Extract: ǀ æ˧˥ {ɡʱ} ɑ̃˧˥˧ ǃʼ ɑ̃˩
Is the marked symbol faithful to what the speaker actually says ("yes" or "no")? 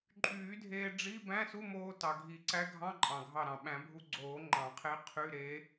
yes